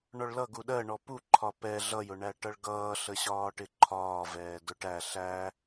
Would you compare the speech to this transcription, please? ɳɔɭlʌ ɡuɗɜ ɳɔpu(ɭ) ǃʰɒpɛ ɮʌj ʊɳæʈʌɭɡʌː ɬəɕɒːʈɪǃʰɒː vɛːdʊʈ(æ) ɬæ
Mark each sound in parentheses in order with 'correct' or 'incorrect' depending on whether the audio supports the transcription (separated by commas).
incorrect, correct